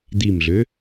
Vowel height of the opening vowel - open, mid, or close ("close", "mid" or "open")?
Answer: close